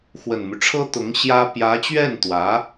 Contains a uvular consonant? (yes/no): no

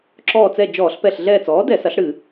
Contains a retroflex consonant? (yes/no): yes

